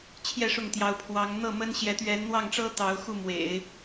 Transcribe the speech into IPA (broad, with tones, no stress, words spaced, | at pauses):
t͡ɕʰjɛ˥˧ʂʊ˥˩ŋt̪jɑ˧˥ʊ̯ pʰwɑ˧˥ŋ n̪ɤ˥˩mə˥n ɕjɛ˧˥t̪ɥɛ˧˥nn̪wɑ˥˩ŋʈ͡ʂɤ˥ t̪ɑ˧˥ʊ̯xu˥˩ mwḛ˨˩˦ɪ̯